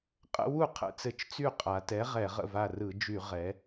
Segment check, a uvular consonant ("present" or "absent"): present